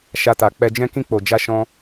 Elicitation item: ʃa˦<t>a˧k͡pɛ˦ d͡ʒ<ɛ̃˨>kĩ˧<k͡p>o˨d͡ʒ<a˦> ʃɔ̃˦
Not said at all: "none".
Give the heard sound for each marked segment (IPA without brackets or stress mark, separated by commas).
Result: t, ɛ̃˧, k͡p, a˧